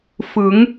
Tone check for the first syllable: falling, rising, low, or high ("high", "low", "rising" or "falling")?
rising